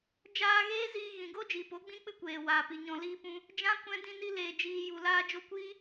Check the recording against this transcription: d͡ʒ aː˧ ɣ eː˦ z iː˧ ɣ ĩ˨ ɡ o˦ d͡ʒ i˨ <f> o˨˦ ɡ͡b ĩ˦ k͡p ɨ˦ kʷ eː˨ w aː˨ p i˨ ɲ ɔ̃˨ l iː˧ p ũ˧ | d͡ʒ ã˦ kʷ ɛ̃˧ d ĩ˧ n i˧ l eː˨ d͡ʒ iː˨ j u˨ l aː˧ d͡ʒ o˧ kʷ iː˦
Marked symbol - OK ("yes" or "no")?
no